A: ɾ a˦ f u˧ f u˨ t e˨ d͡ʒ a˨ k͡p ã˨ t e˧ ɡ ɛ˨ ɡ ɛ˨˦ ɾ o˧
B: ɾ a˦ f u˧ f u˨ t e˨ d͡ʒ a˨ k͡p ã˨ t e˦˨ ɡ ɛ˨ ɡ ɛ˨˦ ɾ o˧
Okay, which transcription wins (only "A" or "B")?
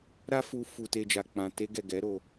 A